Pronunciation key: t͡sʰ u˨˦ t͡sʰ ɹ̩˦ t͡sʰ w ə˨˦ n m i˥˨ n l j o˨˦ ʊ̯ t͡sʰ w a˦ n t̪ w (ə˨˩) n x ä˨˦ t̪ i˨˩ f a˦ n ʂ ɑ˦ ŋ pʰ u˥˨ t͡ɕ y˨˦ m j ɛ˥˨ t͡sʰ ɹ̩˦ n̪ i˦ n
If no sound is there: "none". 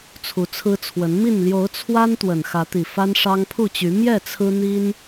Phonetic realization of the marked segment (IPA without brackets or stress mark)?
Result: ə˨˩